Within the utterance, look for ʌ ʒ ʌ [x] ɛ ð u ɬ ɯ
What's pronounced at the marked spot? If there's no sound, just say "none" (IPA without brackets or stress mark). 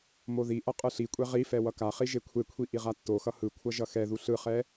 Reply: x